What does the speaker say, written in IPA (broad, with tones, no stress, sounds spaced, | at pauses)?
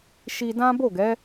ʃ i˧ d ã˦ b o˦˨ ɡ ɛ˨˦